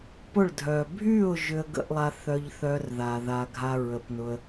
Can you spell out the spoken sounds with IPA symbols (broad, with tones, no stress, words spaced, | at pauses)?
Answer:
pʊ˦˨ɭdʱœ˨ bʱy˦˨ʊ̯ ʒʏ˧ə̯ɡə̰˧ʔlˠa˧ θœ˦ʎθœ˦r ða˨ ða˧ɡʱa˦ ɹə˨pnʊ˧ə̯